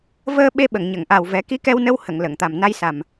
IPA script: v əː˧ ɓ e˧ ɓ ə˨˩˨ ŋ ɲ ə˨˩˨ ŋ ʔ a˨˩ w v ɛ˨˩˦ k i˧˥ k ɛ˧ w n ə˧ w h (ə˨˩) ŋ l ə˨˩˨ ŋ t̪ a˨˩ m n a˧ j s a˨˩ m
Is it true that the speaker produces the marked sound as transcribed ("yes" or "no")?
no